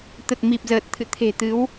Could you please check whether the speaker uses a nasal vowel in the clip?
no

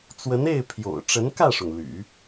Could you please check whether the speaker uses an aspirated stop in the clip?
yes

